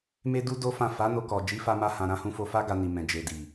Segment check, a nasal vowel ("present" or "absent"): present